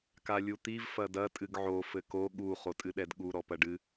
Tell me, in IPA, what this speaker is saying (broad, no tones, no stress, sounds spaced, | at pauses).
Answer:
k a lʲ u t̪ i v f ɐ d ɐ tʼ ɨ ɡ ʕ o f ɘ k o ɠ u χ o tʼ ɨ ɗ ɛ d ɠ u ɾ ɔ p ɐ ɖ ɨ